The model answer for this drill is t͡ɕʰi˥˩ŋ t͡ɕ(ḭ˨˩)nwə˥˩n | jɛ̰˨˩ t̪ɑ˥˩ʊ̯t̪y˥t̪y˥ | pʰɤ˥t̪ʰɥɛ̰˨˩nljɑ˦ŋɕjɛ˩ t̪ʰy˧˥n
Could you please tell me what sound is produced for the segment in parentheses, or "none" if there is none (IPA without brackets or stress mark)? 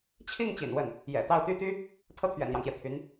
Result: ḭ˨˩